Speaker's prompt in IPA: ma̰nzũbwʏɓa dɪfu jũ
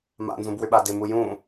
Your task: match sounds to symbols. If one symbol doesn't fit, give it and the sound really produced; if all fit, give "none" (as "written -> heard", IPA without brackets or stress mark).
f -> m